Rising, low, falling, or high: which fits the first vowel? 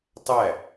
falling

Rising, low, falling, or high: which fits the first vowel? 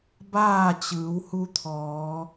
falling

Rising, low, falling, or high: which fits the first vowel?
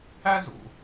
high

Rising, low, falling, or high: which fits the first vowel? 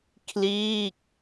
falling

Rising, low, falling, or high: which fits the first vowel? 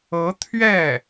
rising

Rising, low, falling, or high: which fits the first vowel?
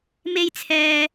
high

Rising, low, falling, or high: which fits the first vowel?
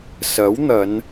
rising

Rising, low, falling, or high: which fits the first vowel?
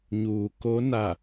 low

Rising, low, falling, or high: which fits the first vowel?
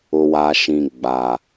low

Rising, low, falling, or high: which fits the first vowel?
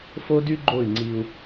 high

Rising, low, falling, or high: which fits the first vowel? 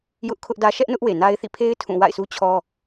high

